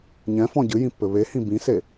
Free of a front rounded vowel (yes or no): yes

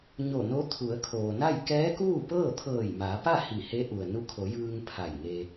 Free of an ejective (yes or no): yes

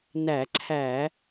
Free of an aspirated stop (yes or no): no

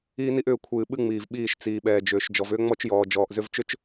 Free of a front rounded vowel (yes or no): no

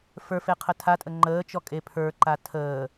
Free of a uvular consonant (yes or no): no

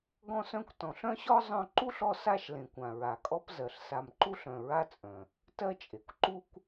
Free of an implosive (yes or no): yes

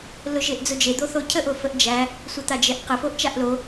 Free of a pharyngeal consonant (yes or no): yes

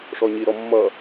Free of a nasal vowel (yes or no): yes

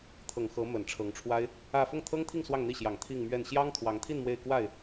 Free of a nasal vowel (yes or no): yes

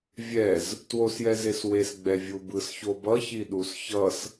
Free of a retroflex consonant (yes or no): yes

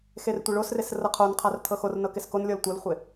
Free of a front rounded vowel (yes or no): yes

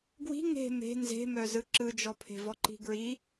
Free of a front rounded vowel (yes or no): no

